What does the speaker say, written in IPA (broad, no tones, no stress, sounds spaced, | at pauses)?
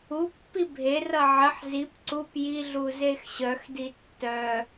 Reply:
u pː i bʱ e r ʌ ʕ ə ħ z i p ǀ u p j i ɮ u z e x ɕ œ x d i tː œ